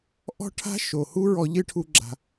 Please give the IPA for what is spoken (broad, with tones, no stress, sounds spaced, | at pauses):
ʔ ɔ̤˦ ʈʰ a̤˦ ʃ o˨ h u˦ ɹ ɔ˧ ʎ ɨ˦ ʈʰ u˧ ɡ͡ǁ a̤˨